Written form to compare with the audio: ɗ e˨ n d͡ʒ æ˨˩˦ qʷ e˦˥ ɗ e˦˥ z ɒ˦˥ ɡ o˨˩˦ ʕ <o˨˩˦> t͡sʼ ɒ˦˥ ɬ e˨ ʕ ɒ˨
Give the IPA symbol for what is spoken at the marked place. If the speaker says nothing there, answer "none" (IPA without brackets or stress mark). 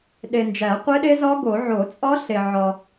o˨˩˦